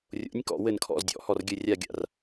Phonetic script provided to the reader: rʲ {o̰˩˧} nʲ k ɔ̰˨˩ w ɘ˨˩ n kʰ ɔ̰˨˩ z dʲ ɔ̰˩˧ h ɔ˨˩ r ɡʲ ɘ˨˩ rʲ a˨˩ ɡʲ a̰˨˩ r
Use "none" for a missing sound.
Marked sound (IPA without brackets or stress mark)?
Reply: o̰˩˧